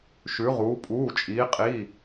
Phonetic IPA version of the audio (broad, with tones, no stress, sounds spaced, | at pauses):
ʃ ʉ˩˧ ʁ uː˩˧ pʼ uː˩˧˩ t͡ʃʼ iː˩˧ qʼ iː˩˧˩